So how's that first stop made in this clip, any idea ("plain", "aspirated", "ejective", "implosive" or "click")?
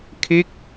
aspirated